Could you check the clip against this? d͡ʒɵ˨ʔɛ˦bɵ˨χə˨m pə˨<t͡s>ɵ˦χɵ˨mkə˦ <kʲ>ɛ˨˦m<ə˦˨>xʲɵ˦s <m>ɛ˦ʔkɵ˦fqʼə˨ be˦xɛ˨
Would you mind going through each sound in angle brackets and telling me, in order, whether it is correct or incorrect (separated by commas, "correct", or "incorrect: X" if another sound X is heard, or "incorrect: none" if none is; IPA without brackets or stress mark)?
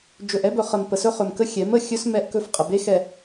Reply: incorrect: s, incorrect: xʲ, correct, correct